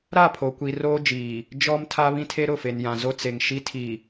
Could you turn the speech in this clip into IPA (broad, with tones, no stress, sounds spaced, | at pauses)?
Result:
ɾ a˦˨ pʰ o˨ kʷ i˨ r oː˦ d͡ʒ iː˨ | d͡ʒ ɔ˦ m tʰ a˦ β ĩ˦ tʰ e˦ ɾ ʊ˦˨ f e˨ n j ã˨ z o˦ t͡s e˨ ŋ ʃ i˦ tʰ i˨